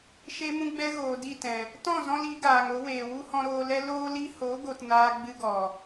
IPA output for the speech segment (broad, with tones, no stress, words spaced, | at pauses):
ʃe˦mũ˦ ɡ͡bɛ˦ɣoː˨ di˦˨tɛ̃˨ | tɔ̃˦˨zɔ̃˧l i˨˦ɡaː˨ŋo˨˦weː˨ wu˦hɔ̃˧ɾoː˧lɛ˦ loː˧li˧ho˨˦ ɡo˧tnaː˦ɡ͡bɨ˦ɡɔ˨